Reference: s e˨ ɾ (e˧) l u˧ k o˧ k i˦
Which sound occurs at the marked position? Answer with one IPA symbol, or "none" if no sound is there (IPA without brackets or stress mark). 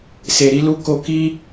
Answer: i˧